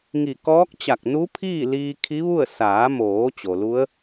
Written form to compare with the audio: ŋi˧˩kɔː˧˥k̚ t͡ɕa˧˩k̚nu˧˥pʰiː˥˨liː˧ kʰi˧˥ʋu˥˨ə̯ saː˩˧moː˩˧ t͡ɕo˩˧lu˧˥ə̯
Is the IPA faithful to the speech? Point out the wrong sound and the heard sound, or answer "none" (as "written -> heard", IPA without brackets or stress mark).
o˩˧ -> o˩